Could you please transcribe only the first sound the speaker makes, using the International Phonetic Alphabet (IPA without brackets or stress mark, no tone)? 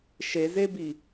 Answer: ʃ